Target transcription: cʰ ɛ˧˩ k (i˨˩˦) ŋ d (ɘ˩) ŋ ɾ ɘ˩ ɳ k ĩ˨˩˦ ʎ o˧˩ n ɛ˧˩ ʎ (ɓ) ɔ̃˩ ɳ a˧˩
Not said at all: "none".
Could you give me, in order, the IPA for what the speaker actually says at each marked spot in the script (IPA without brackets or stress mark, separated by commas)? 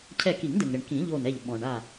i˨˩˦, ɘ˩, ɓ